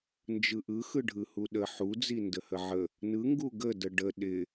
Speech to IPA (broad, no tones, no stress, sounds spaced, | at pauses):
n d͡ʒ ɯ ʔ ɯ x ɯ ɖʱ ɯ h u ɗ ə ħ u d͡z i n d ə h ə ʕ ə | n ɯ ŋ ɡ u ɡ ə d ə ɖ ə ɗ ɪ